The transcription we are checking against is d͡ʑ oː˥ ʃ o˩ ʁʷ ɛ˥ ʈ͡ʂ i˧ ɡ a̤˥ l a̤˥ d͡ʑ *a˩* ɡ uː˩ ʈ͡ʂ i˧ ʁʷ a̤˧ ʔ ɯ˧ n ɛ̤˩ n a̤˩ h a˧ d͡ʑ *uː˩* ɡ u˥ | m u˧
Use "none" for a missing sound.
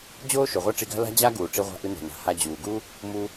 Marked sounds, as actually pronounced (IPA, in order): a˥, uː˩

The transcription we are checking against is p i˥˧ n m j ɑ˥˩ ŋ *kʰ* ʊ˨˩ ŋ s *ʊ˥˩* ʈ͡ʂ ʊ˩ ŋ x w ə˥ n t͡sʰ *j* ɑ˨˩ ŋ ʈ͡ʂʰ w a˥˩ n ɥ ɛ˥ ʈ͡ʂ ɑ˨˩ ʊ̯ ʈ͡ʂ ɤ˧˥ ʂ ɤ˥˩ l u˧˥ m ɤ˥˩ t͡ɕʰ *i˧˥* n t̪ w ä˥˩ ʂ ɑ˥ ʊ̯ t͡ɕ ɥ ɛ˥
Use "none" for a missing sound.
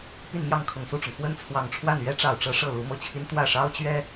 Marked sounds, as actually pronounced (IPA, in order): kʰ, u˥˩, w, i˥

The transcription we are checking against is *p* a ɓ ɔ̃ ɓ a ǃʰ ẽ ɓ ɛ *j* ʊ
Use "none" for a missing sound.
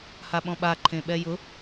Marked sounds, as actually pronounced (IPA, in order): h, j

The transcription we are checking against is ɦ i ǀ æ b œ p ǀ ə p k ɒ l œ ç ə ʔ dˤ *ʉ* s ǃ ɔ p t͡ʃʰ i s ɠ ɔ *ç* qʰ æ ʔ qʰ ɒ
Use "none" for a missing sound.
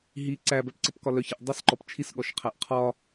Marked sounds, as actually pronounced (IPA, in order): ə, ʃ

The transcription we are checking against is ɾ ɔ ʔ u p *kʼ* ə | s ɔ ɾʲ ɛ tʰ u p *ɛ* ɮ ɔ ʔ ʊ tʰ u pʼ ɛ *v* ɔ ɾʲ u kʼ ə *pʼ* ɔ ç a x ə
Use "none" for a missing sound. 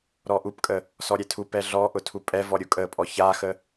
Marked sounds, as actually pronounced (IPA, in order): kʼ, ɛ, v, pʼ

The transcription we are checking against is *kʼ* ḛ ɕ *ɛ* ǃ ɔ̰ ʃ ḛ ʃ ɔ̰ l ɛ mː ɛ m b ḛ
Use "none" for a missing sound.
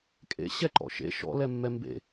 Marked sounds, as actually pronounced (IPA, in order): kʼ, ɛ

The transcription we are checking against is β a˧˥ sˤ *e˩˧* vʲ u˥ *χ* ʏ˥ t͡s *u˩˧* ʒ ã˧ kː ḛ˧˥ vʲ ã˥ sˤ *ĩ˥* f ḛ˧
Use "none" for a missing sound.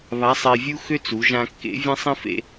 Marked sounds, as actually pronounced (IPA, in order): e˧, x, u˩˧, ĩ˥

